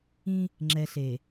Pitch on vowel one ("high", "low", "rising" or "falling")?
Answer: high